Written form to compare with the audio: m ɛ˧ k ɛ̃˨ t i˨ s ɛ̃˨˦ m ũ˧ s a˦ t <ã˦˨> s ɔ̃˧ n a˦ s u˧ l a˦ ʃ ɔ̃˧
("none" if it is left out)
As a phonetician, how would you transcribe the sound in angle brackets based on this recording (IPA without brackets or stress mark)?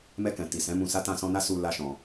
ã˦˨